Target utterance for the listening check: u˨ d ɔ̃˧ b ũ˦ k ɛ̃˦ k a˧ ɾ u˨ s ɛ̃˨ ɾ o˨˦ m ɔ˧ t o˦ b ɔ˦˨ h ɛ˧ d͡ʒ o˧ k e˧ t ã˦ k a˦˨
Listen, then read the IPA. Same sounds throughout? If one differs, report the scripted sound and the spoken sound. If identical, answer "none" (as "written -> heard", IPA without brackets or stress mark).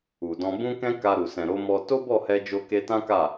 none